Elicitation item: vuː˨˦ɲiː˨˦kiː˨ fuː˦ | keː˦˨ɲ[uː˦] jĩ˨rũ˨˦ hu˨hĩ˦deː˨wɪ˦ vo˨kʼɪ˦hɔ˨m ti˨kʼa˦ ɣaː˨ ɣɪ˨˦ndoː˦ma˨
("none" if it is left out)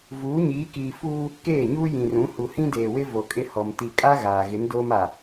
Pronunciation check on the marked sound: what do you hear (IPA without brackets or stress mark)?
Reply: uː˦